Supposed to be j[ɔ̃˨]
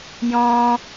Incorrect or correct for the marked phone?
incorrect: ɔ̃˦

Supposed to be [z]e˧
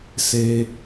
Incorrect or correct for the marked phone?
incorrect: s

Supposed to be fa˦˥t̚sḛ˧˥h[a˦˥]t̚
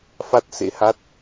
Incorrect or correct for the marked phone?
correct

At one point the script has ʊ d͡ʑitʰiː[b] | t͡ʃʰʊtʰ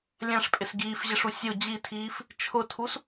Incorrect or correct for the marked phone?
incorrect: f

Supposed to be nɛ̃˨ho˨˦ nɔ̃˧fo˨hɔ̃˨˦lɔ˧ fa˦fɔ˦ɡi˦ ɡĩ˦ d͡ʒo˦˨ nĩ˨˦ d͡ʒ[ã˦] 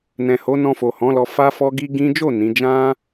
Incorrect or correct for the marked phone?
correct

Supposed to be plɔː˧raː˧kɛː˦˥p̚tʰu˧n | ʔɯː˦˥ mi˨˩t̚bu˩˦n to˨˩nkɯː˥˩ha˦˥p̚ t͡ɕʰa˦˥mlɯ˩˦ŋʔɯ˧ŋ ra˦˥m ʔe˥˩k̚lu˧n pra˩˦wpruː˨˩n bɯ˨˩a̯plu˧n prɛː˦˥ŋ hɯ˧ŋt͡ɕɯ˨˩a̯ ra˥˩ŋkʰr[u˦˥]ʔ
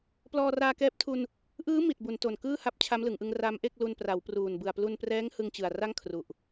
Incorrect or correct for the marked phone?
incorrect: u˨˩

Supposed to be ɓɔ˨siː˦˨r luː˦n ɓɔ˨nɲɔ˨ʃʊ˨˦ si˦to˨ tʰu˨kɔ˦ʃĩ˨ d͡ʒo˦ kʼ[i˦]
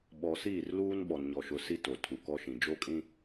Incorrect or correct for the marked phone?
incorrect: ĩ˦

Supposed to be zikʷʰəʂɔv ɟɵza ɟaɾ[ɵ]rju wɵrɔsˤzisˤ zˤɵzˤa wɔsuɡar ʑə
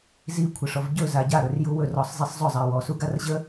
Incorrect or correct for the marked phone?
correct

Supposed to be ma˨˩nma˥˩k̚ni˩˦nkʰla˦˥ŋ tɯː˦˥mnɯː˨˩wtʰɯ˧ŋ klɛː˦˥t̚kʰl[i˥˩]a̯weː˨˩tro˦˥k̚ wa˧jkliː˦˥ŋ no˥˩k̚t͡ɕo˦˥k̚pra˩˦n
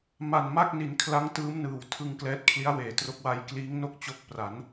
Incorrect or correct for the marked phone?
incorrect: i˦˥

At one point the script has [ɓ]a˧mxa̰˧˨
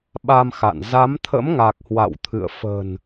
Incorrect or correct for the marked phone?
correct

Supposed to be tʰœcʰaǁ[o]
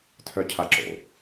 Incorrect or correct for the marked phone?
incorrect: o̰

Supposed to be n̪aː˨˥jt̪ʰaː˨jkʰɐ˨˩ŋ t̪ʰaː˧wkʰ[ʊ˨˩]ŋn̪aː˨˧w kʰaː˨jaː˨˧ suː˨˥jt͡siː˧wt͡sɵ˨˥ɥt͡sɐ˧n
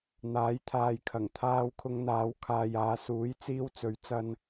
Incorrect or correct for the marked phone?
incorrect: ʊ˧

